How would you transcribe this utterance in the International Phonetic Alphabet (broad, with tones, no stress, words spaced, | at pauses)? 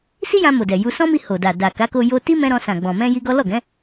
si˦jã˧ mo˨dɛ˨ ju˧ sɔ̃˦mi˧ ho˨da˨ da˨ka˨˦ko˧ jo˧ti˦mɛ̃˧ ɾɔ̃˧sã˨ ɡ͡bɔ̃˨ mɛ̃˧ ji˦ ɡɔ˦ lɔ˦˨ɡɛ̃˨˦